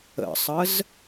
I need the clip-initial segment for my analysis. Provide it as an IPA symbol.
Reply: ə̰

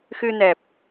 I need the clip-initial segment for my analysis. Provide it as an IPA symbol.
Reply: x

